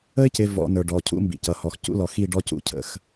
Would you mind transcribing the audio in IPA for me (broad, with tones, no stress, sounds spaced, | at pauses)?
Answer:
ə˦ ɪ̯ c ɪ˨ v ɔ̰˨ n ə˞˨ ɖ ɔ˨ cʰ ṵ˦ m b ḭ˨ c ʌ˨ h ɔ˨ x c ṵ˦ l ɔ˨ x i˦˨ ɖ ɔ˦ c ṵ˦ cʰ ə̰˦ x